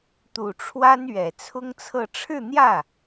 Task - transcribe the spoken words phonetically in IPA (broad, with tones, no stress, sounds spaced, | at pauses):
t̪ u˨˩ ʈ͡ʂʰ w a˥ n ɥ ɛ˨˩ t͡sʰ ʊ˥ ŋ t͡sʰ ɤ˥˧ ʈ͡ʂʰ ɻ̩˥˧ n̪ j ä˥˩